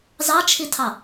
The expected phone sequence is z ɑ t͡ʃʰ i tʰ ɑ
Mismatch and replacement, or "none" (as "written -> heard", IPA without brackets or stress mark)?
none